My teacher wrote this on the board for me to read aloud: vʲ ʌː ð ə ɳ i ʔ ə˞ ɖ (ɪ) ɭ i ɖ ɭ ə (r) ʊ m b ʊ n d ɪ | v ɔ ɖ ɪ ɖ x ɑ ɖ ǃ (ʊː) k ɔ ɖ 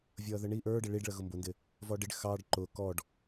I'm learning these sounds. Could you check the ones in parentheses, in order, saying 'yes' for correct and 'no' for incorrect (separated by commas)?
yes, no, yes